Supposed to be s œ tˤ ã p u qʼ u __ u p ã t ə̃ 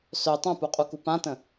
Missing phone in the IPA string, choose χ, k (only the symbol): k